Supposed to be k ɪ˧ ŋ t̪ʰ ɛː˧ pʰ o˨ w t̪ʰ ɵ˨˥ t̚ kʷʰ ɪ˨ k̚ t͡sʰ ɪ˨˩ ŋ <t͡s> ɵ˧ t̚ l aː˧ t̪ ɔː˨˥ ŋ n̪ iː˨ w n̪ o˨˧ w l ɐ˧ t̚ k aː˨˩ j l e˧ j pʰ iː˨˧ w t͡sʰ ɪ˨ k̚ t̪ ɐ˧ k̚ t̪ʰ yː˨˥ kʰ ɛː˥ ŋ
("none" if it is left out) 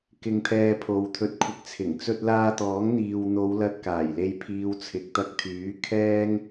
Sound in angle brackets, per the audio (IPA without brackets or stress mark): t͡s